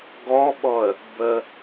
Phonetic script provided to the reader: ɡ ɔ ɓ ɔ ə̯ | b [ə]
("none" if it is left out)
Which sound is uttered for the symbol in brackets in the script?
ə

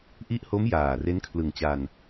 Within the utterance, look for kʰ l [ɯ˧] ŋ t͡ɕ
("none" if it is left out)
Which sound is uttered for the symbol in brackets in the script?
ɯ˨˩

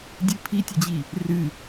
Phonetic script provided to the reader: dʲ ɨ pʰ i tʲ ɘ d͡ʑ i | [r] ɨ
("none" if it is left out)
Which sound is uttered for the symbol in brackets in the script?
r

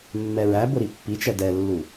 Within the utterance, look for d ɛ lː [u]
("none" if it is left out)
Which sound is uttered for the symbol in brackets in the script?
u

